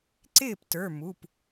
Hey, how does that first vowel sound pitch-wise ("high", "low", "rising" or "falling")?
falling